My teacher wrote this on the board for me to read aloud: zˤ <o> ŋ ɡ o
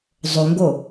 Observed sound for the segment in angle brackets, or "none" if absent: o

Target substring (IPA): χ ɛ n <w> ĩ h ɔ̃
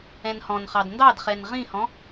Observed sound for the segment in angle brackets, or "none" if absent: ʁ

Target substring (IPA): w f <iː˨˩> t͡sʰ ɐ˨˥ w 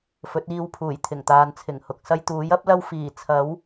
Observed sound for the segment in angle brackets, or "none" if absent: iː˨˩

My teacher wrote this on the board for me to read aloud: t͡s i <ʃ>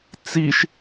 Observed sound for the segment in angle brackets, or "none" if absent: ʃ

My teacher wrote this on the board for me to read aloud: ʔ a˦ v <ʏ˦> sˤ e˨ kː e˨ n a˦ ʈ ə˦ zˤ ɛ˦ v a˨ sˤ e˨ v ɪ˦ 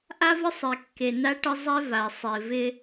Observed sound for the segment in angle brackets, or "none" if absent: ə˦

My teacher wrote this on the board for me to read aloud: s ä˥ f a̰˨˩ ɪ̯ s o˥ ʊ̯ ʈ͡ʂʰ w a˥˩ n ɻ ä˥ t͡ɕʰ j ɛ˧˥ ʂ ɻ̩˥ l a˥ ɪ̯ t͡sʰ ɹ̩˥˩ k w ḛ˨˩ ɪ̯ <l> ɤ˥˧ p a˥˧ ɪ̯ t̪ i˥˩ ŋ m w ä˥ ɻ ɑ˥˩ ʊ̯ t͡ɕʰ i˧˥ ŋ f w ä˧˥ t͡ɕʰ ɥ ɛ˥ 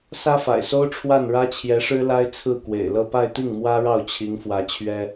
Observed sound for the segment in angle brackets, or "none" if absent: l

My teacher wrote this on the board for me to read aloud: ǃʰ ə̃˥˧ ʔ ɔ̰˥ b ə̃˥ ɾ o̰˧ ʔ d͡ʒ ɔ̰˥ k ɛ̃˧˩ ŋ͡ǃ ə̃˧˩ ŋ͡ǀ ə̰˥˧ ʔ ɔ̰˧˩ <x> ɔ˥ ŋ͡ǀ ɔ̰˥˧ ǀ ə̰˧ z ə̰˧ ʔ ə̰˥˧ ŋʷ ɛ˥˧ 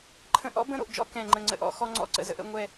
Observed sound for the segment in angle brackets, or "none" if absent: x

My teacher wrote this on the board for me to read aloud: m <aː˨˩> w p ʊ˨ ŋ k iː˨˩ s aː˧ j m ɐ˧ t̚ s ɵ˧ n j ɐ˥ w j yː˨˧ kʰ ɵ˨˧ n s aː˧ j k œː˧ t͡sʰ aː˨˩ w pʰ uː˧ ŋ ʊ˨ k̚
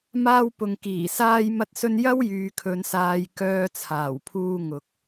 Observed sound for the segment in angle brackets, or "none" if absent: aː˧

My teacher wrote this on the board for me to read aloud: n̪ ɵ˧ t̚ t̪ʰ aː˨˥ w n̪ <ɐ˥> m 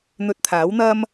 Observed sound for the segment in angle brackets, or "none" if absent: ɐ˥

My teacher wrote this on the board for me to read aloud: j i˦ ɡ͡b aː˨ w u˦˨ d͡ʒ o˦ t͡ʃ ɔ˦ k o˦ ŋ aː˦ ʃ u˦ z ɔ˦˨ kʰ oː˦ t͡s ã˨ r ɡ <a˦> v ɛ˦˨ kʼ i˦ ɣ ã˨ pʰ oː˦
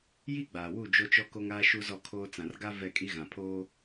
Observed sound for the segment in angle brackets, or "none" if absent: a˦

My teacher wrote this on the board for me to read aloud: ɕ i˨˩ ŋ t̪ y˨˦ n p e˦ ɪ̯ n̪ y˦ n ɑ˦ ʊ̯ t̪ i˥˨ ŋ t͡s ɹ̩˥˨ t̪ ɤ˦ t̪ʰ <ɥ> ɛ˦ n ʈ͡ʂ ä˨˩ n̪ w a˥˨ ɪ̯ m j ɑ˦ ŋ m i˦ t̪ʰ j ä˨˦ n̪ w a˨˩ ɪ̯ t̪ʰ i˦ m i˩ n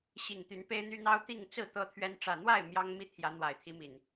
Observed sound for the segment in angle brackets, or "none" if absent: ɥ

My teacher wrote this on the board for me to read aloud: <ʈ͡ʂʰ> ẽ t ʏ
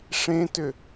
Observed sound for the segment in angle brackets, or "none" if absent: ʂ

